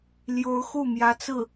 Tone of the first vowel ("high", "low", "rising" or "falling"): rising